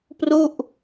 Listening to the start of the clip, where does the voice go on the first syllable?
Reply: falling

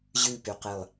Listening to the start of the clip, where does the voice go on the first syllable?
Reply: low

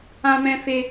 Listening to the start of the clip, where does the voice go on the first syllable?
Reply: high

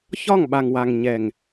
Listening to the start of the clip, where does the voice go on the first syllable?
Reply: falling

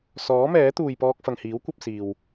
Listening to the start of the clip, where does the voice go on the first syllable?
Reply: rising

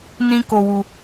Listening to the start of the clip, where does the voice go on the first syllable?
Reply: high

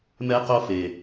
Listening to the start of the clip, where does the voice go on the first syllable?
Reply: high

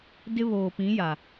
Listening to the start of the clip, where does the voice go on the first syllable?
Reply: high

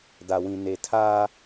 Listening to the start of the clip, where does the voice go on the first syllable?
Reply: low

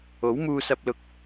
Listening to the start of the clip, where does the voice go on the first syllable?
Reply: rising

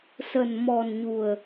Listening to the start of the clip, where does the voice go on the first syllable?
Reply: low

